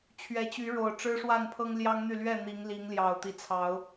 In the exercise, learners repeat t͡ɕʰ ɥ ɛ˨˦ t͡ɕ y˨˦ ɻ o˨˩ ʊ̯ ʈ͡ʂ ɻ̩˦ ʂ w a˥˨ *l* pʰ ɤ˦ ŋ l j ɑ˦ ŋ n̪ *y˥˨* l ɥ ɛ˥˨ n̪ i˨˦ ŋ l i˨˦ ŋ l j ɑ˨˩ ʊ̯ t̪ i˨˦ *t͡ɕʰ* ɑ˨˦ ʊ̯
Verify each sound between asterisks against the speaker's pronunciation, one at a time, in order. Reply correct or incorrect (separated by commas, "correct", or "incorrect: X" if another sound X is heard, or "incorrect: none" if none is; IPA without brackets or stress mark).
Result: incorrect: n, correct, incorrect: t͡sʰ